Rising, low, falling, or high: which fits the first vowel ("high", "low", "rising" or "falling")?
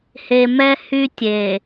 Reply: low